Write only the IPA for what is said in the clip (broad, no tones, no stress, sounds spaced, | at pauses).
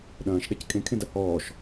ɗ ɐ̃ː ʃ ɗ ɛ c kʼ ẽ kʰ ẽ d ɐ h ɔː ʃ